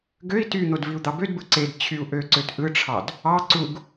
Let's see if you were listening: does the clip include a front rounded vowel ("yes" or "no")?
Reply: yes